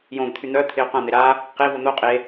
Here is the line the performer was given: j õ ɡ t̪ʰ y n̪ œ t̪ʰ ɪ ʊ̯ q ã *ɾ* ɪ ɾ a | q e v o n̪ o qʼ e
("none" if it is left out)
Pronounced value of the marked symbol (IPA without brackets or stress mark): n̪